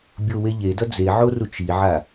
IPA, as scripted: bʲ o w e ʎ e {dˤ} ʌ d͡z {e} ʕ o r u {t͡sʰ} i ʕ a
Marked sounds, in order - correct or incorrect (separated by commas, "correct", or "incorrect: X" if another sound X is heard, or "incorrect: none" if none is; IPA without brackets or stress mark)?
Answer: incorrect: d, correct, incorrect: t͡ʃ